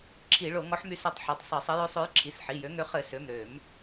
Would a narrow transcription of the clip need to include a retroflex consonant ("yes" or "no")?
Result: yes